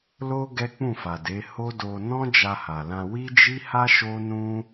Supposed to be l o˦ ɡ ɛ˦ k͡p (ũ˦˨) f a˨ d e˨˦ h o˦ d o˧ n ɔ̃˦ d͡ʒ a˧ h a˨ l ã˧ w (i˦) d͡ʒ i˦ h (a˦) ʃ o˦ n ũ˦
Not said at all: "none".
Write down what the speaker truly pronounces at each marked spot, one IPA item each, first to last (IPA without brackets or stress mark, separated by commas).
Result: ũ˦˨, i˦, a˦